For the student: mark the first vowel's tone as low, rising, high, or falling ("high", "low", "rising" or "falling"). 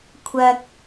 low